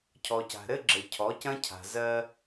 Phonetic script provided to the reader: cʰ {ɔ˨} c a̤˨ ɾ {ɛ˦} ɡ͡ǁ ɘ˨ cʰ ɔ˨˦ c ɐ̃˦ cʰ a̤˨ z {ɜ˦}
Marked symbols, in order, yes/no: yes, no, yes

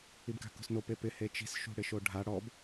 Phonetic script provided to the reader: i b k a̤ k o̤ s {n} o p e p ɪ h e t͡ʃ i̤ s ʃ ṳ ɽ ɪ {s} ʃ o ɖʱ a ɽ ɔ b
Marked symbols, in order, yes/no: yes, no

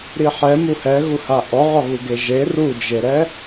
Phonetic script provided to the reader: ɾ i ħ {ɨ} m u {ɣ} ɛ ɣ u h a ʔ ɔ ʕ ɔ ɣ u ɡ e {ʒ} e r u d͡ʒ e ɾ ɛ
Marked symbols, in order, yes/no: no, no, yes

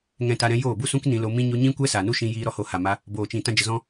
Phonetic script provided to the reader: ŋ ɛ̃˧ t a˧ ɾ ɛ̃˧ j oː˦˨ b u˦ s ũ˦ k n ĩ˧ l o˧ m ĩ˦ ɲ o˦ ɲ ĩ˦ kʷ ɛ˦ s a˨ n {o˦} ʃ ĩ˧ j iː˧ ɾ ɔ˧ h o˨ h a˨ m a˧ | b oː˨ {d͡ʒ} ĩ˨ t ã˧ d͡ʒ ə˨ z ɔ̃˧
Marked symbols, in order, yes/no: no, no

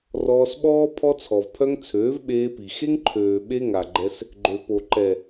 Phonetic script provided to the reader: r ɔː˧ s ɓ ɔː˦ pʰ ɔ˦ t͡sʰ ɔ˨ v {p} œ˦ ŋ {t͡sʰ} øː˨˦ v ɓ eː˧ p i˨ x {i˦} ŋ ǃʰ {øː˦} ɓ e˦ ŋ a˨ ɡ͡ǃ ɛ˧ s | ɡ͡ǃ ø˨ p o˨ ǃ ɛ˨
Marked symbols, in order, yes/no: no, yes, no, no

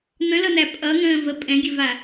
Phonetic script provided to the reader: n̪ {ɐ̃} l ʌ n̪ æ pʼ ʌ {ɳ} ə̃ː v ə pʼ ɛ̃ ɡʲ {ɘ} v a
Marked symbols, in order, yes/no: no, no, yes

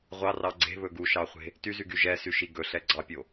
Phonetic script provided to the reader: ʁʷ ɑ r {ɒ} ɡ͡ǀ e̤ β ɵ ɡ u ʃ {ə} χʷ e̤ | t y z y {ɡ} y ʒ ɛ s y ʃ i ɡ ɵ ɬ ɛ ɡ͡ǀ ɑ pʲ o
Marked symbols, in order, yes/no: no, no, yes

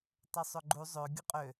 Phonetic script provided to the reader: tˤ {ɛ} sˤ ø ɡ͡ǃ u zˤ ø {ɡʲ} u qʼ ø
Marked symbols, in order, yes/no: no, yes

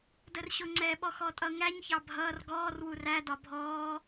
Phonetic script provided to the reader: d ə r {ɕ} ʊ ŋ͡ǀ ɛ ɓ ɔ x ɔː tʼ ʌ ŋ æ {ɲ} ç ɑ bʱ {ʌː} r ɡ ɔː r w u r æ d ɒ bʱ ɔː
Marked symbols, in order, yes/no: yes, yes, yes

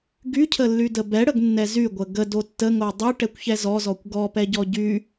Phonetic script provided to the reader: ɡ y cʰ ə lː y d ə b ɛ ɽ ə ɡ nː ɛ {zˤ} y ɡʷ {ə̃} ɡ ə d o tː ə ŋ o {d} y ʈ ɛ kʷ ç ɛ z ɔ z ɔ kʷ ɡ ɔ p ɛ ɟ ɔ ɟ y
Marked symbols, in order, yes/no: no, no, no

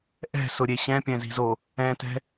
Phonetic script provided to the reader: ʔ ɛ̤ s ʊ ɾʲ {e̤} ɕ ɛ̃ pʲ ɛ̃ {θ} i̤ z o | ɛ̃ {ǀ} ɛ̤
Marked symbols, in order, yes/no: no, no, no

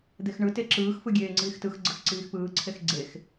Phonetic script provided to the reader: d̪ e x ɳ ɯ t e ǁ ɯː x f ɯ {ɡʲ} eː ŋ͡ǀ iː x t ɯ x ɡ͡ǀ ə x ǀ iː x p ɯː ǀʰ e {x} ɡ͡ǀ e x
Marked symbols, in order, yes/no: yes, yes

